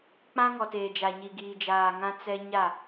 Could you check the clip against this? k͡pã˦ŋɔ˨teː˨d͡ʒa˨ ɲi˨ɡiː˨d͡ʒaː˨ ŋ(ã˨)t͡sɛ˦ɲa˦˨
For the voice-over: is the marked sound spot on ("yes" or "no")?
no